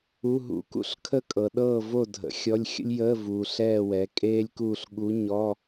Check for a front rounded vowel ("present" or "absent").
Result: absent